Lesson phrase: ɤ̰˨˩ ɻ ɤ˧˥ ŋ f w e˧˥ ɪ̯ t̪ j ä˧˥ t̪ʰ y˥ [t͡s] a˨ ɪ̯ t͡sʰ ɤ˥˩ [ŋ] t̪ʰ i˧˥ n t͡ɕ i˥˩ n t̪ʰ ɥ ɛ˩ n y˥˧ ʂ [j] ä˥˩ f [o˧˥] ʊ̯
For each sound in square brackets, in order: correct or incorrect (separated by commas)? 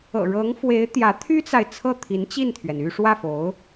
correct, incorrect, incorrect, correct